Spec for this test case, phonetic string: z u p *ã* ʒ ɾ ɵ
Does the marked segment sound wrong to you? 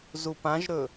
no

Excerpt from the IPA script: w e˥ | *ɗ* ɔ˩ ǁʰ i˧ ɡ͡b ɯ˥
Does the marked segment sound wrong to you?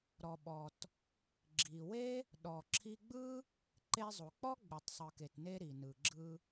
no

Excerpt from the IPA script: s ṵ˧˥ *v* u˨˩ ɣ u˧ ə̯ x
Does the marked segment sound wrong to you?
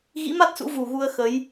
no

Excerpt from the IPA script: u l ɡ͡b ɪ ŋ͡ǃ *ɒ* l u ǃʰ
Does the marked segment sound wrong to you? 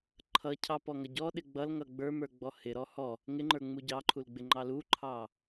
yes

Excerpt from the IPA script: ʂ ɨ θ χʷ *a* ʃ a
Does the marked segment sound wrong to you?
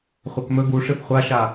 no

